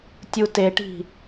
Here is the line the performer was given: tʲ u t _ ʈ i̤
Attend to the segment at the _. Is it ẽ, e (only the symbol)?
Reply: e